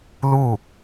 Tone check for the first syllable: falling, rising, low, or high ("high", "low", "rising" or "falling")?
falling